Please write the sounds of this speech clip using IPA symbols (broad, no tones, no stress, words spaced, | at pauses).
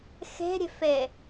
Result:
xe̤ɾʲe̤fe